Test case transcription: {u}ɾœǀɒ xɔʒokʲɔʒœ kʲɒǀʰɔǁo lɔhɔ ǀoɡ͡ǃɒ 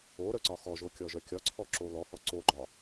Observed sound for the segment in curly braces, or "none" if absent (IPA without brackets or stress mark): o